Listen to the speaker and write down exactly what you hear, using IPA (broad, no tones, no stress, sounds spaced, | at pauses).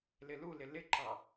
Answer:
l ɪ l u l ɪ l ɪ ǃ ɑ